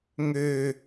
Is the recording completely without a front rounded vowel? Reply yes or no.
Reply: no